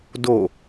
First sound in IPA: d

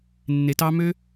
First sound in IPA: nː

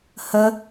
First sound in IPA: h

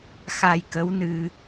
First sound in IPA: x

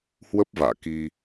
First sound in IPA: h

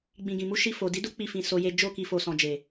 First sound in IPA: ɡ͡b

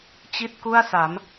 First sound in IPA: t͡ɕ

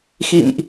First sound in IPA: x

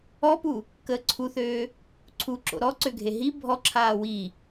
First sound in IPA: ɔ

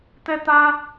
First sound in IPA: t̪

